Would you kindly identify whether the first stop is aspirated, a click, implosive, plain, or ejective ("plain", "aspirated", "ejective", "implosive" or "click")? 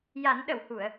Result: implosive